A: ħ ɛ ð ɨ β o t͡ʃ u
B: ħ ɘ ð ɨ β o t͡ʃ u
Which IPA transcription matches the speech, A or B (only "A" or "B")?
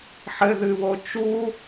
B